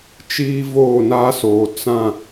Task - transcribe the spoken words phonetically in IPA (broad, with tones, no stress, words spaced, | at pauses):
t͡ʃiː˦ voː˦˨na˦soː˨ t͡sã˦˨